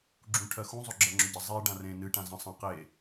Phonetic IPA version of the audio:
ɡ͡ǁ ũ ʈʰ ɜ x ũ zˤ ɵ ɡ͡ǁ ɜ ŋ͡ǁ ɵ ɟ ə zˤ e ɖ ã r ẽ n ɨ ʈ ã z ə̃ sˤ ə̃ q e

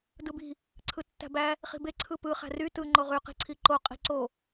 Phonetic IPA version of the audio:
d ɯ b i̤ | ǀʰ ɯ tː æ̤ b æ | χ i̤ b e ǀʰ ɯ p ɯ χ æ̤ r y t ɯ ŋ͡ǃ o ʁ y q i̤ ǀʰ i ǃ o qʼ i̤ ǀ o

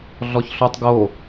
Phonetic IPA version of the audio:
ɮ ɔ ç ɬ o tˤ ɡ o

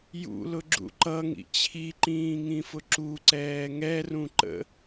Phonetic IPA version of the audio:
j ṵ l ʊ ɡ͡ǁ ṵ ǃ ʌ ŋ ḭ t͡ɕʰ i ǃ ĩː ŋ ĩ f ʊ ǁ u ǀ ɛː ŋ ɛ r ũ ǃ ə̰

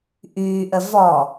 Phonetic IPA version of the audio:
ʔ yː ʔ ə v ɔ

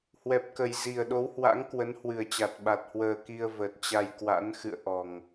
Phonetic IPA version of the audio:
h w ɛ˨˩ p̚ k ə˨˩ j z i˨˩ ə̯ ɗ o˨˦ w h w a̰˧˥ ŋ k w ə˨˦ n h w ɨ˨˩ ə̯ t͡ɕ a˨˩ t̚ ɓ a˨˩ t̚ h w əː˨˩ k i˧ ə̯ v ə˨˩ t̚ t͡ɕ a˧ j k w a̰˧˥ n x ɨ̰˧˨ ə̯ ʔ ɔ˨˩ ŋ

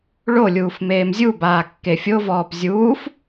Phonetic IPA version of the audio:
ɭ o lʲ uː f m eː m zʲ u b aː kː e fʲ o v ɔː p zʲ uː f

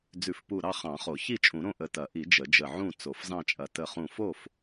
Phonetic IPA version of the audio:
d͡z ʉ˨˩˦ f p u˧˩ ɾ ɑ˥˨ χ ɑ̃˨˩˦ χ o˨˩˦ ç i˥˨ t͡ʃʼ ũ˨˩˦ ɾ õ˥˨ ʔ ə˧˩ t ɐ˨˩˦ ʔ i˨˩˦ d͡ʒ ə˨˩˦ d͡ʒ ə˧˩ ʕ ũ˥˨ t͡s o˨˩˦ f z ɑ̃˥˨ t͡ʃʼ ɐ˧˩ t ə˧˩ χ ũ˧˩ f o˥˨ f

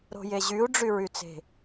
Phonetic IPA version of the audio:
ɾ o̤ j e ʑ y u̯ ɖ͡ʐ y ɹ y t͡s e̤

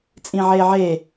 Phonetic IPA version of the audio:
t͡sʼ ĩ ʕ e ʕ e

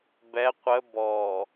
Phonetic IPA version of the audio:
b ɛ qʷ ə b ɔ

